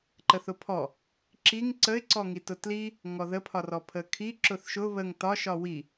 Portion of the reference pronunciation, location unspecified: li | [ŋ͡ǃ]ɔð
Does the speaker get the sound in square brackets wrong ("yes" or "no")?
yes